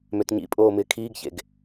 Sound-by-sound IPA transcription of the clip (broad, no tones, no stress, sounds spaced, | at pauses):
m ø t ɲ ḭ pʼ oː m ɪː kʰ iː ɡ ç ḛ ɡ